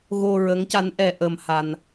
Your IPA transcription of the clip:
ɣo˧ɹə˧˥ŋca˧˥n ʔɛ˧ʔə˧mha˧n

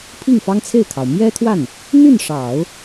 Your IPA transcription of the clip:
pʰi˥˩ŋfɑ˥ŋt͡sʰe˥˩ɪ̯kʰɑ˩ʊ̯ mjɛ˥t̪ʰwa˥˩n | n̪y˥˩n ʂɑ˨˩˦ʊ̯

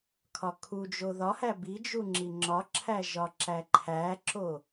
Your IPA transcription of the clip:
kʰɒkʰud͡ʒo ðɒhæ bid͡ʒu ŋ͡ǁiŋ͡ǁɒǁʰæ ʒɒǁæǃʰæǁo

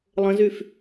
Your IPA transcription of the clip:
lˠə̃zyf

